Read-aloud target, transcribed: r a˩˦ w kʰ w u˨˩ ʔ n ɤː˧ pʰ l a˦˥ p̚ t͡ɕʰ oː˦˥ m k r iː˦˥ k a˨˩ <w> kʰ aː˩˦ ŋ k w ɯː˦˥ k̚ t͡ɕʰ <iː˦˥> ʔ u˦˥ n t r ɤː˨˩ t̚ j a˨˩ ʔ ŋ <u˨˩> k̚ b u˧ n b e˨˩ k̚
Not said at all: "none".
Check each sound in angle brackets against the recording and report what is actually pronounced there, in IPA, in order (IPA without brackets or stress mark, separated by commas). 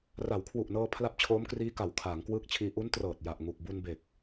w, iː˧, u˨˩